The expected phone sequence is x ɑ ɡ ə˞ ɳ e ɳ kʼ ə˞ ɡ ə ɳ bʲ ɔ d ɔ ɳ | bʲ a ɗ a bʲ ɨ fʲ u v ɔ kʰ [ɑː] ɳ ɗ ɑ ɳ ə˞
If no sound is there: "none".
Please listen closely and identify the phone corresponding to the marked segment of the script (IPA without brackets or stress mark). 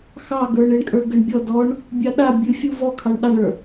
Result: ɑ